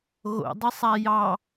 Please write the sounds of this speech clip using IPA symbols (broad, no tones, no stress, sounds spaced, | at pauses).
ɣ o̰ dˤ ə sˤ a j ɑ